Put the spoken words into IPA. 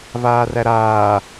v aː r æ ɾ aː

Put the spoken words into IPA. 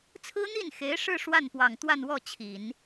t͡sʰ ɹ̩˥ n̪ i˥˩ n x e˧˥ ɪ̯ ʂ ɻ̩˥˧ ʂ w a˥˩ n p w ɑ˨˩ ŋ t̪ w a˥˧ n w ɔ˥˩ t͡ɕʰ i˨˩˦ n

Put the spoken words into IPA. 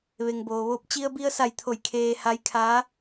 ʋ e˩ ŋ b oː˩ ʋ oː˧ p̚ t͡ɕ i˧ ə̯ b i˧ ə̯ s a˧˩ j t̪ʰ o˧˩ j kʰ eː˧ h a˧˥ j kʰ aː˧˥

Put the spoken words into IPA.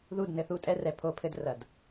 ð u˦˨ d n ɘ˦ θ u˦ tʼ ɛ˦ r ɛ˨ pʰ o˦ pʰ ɘ˦ d r ɐ˨ d

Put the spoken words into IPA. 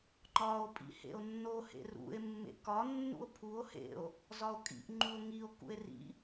ŋ͡ǃ ɒ o̯ pʼ ḭ h ḛ o̯ nː o h ḛ r ṵ e̯ mː ḛ k ɒ nː ṵ o̯ pʰ u o̯ h ḛ o̯ | z ɒ o̯ kʼ ḭ ʔ ŋ͡ǃ u o̯ ŋ i o̯ k ṵ e̯ r ḭ

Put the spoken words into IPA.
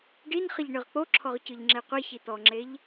ɖ i n χ ə ʎ ɳ ɯ ʁ k͡p o ǁʰ ɔ ʁ c ɯ ʎ ŋ͡ǁ e qʷ i ç i t̪ ɔ ŋ͡ǁ e ʎ

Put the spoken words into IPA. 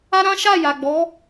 a˦ ɾ ã˦ ʃ a˦˨ j a˨ ɡ͡b ɔ˨˦

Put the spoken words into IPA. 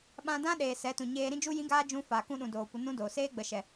ɓ ã˧ d ã˦ ɗ eː˨ s ɛ˨˦ t ũ˨ ɲ eː˧ ɾ ĩ˦ d͡ʒ u˦ j ĩ˦ ɡ aː˦ d͡ʒ ũ˧ f a˨ k ũ˧ ɗ ũ˨ d oː˨ kʷ ə˧ n ũ˦ d oː˨ s eː˦ ɡ͡b ə˨ ʃ ɛ˨

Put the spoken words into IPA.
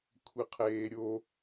kʷʰ i qʰ eː ɾʲ o

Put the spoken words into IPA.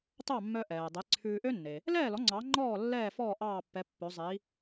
t ɑ˥˩ mː œ˧ ʔ ɛː˩ dˤ e˩˥ ǀʰ ʉː˧ ʔ ø˥ nː e˩ | l ɛː˥˩ l ɔ˩˥ ŋ͡ǀ ɑ˩˥ ŋ͡ǃ ɔː˥˩ lː ɛː˥˩ f ɔː˥˩ ʔ ɑː˥˩ pː ɛ˩˥ pː ɵ˩˥ zˤ i˩˥

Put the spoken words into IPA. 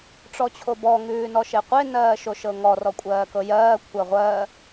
ʈ͡ʂ ɔ t͡ɕʰ o b ɔ ŋ ʉː n ɔ ʃ e qʷ e n ɜː ʃ o ʃ ɤ ŋ ɔ r ɔ kʷʼ ɜː k ɤ j ɜː kʷʰ ɜ ʁʷ ɜ

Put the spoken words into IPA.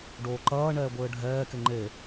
ɖ oː ǃ ɐː ɳ ɛː ɡʷ ɘː ɖʱ ɛː k e ŋ͡ǃ e

